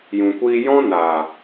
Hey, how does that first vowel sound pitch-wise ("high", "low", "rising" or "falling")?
low